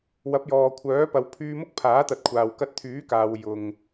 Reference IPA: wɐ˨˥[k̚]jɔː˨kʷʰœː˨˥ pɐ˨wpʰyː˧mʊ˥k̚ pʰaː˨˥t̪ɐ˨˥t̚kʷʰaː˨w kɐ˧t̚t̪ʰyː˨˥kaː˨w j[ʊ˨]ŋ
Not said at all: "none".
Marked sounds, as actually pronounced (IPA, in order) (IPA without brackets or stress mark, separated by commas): p̚, ʊ˨